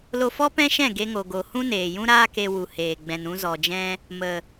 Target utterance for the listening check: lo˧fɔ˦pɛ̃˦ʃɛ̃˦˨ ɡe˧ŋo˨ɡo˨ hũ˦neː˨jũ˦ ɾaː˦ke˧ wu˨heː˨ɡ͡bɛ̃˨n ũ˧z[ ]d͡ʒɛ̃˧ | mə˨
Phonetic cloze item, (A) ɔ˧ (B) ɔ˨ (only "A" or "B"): B